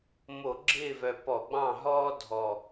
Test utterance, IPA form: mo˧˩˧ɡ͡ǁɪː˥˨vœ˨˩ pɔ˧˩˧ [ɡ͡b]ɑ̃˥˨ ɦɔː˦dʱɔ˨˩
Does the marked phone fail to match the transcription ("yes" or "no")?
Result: no